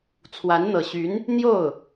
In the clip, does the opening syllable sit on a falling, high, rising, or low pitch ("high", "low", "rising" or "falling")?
rising